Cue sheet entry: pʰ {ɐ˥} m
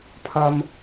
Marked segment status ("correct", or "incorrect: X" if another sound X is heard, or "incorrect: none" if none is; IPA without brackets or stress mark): correct